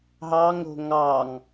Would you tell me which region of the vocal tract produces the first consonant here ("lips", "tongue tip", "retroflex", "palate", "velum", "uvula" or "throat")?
throat